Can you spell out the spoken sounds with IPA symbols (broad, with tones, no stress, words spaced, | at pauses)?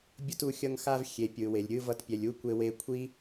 bʲo˧tu˨ xʲʌ˧ŋxa˧v xʲe˨pʲɯ˨we˨lʲ ɾʲɯ˧ vʌ˧tpʲɛ˨lʲ u˦kʷe˧we˧ kʷʰi˦